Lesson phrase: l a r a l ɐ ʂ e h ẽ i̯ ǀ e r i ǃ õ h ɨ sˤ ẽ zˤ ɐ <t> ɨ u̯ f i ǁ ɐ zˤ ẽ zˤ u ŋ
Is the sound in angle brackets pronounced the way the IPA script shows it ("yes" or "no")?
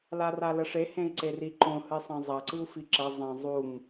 no